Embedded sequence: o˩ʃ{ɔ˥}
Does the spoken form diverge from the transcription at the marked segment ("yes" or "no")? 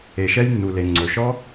no